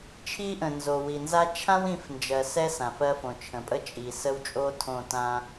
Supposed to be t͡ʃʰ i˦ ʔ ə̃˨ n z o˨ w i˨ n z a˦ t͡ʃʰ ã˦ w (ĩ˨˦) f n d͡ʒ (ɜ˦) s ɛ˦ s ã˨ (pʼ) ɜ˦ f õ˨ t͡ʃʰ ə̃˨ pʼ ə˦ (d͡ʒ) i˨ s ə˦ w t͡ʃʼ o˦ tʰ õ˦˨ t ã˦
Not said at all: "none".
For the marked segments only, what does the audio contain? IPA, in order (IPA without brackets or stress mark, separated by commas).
ĩ˨˦, ɜ˨, f, t͡ʃʼ